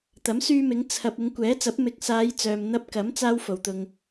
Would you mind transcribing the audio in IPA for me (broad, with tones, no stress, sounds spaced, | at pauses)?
t̪ ɐ˨˥ m s yː˧ m ɪ˨˧ ŋ t͡sʰ ɐ˨ p̚ ɪ˨˧ ŋ kʷ ɛː˨˥ t͡s ɐ˨˥ p̚ m ɪ˨˥ k̚ s aː˨˧ j t͡s œː˨ m n̪ ɐ˧ p̚ k ɐ˨˥ m t͡s aː˧ w f o˨ w t̪ ʊ˧ ŋ